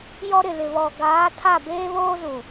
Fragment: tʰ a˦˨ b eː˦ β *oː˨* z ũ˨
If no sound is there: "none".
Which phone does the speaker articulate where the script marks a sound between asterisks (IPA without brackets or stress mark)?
oː˦